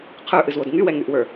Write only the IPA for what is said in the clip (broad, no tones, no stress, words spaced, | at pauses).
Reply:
qʰə˞ʔɨzwod ŋywɛŋyʔwə˞